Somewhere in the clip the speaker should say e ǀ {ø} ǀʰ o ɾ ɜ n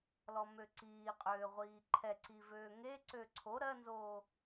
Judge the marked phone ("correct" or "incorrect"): correct